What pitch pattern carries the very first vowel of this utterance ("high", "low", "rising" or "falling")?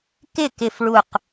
falling